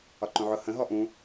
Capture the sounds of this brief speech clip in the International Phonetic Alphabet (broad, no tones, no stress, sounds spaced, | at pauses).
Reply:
ɒ ǃ ũ ʕ ʊ h ə̃ ɦ ɔ ʔ ũ